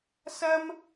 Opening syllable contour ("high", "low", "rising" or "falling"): high